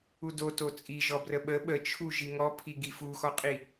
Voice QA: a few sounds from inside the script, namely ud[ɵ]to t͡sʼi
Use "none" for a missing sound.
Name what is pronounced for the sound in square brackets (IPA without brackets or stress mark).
o